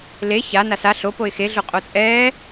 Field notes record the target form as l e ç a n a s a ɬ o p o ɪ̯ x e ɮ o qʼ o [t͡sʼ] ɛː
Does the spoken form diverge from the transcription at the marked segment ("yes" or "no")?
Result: no